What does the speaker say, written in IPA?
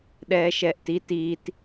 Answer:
ɗ ɛː ʃ ɛː ʔ t i t iː t

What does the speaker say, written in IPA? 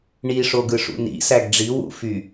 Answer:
ɳ i ʂ o ɡ ɯ ʂ ṵ n ḭ s æ ɡ ɖ͡ʐ i w ṵ f y

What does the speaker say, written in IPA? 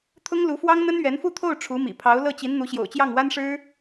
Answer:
t̪ʰ ʊ˥ ŋ l u˧˥ f w ɑ˥ ŋ n̪ ə˥ n ɥ ɛ˧˥ n f u˥˧ t̪ʰ o˥˩ ʊ̯ ʈ͡ʂʰ u˧˥ m ḭ˨˩ pʰ ɑ˧˥ ʊ̯ l ɤ˥˩ t͡ɕ i˧˥ n n̪ u˧˥ ɕ j o̰˨˩ ʊ̯ t͡ɕ j ɑ˥˩ ŋ w a˥ n ʂ ɻ̩˥

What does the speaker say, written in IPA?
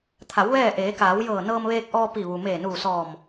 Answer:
t̪ʰ a˩˧ w ʋ ɛː˥˨ ʔ eː˩˧ k aː˩˧ w j ɤː˧˩ n ɤː˧ m ʋ eː˧ k̚ ʔ ɔː˧ p i˧˩ ʋ u˩ m eː˧˩ n uː˧˩ s ɔː˧˩ m

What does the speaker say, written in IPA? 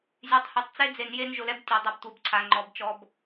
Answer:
zʲ e˨ tˤ h æ˨ tˤ t͡s e˦ d͡z e˨ n j e˦ n ʒ ʊ˨ l ɛ˦ b tʲ e˨ dˤ a˦ b tʷ e˨ b ǀʰ a˨ ŋ͡ǃ ɔ˨˦ b t͡ʃ ɔ˦ b

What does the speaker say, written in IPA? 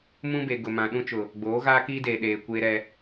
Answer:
m ũ˦ b e˨ ɡ ʊ˨ m ã˨ ɗ ũ˦ t͡ʃ ʊ˨ | ɡ͡b oː˨˦ ɣ aː˦ k iː˦ d eː˨ ɗ eː˨ kʷ eː˦ ɾ ɛ˦

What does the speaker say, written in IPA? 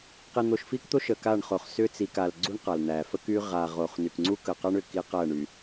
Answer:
q i˨ n̪ o˨ ʃ f i˦ k t̪ o˦ ʃ ə˨ k a˦˨ ɳ χ o˨ χ s ʏ˦ t͡s i˨ k a˨ l ɡ͡ǀ u˦ ɳ q a˨ l n̪ æ˨ f ə˦ k y˦ ʁ a˨ ʁ o˨ χ n y˨ k ŋ͡ǀ u˦ k ə˨ q a˦ ɳ ʏ˨ k i˦ q æ˦˨ ɳ y˨

